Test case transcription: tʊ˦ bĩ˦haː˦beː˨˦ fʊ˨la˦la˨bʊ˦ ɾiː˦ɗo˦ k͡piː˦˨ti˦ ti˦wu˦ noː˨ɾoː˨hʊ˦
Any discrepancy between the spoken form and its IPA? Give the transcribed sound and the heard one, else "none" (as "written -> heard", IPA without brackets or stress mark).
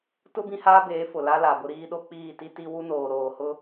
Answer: none